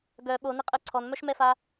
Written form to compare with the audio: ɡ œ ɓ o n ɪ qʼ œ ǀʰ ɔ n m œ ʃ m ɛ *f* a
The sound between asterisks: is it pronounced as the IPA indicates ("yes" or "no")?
yes